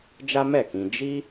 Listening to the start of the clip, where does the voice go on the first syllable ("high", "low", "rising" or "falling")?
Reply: high